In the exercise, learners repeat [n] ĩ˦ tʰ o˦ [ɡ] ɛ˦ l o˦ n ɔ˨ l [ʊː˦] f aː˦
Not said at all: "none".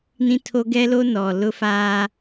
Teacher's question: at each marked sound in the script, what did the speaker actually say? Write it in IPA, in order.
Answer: n, ɡ, ʊ˦

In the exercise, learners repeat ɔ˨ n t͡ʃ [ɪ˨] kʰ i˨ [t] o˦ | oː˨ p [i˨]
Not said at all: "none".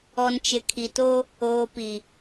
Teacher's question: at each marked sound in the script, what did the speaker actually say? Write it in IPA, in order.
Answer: ɪ˨, t, i˨

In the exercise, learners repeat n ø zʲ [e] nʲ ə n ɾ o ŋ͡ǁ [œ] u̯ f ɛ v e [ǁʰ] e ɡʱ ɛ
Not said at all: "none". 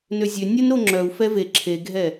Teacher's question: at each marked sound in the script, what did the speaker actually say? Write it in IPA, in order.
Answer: ø, œ, ǁʰ

